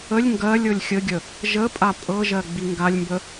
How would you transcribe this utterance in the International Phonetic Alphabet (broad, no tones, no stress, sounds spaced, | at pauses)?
ə lʲ ŋ ɡ ɜ lʲ ɤ lʲ xʲ ə ɡʲ ə | ʒ ə pʼ a pʼ ɤ ʒ ɜ ɡ͡b i ŋ ɡ a lʲ m b ə